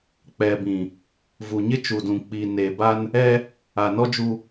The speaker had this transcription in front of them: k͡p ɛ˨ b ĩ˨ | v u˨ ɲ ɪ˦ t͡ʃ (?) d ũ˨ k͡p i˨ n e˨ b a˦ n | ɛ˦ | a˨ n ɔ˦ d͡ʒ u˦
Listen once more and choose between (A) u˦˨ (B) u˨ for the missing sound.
B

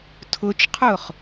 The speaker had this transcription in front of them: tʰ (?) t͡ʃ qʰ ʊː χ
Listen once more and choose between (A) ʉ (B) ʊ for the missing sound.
B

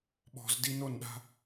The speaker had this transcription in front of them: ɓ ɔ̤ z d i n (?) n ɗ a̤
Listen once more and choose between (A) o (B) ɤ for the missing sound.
A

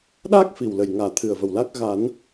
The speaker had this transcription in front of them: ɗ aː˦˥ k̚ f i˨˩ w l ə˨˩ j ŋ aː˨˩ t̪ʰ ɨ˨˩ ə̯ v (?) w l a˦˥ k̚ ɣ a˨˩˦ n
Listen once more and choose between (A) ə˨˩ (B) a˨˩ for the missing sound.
A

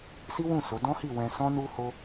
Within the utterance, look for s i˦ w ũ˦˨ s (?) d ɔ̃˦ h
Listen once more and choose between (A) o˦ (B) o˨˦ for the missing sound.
B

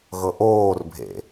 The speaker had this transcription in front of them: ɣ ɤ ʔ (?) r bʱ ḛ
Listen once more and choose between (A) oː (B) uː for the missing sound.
A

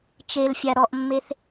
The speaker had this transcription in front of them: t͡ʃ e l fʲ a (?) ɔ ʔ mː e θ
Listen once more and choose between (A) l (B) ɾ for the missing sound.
B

